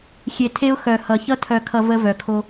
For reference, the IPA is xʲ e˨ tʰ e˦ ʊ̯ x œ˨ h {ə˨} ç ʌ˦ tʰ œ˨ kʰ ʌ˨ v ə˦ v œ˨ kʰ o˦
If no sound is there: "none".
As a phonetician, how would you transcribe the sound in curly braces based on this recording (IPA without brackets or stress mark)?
ʌ˨